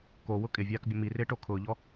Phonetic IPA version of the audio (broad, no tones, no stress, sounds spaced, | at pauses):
k o w ʊ kʼ ɪ vʲ aː k bʲ ʊ m i r ɪː ʈ o kʰ ʊː ʎ ɔ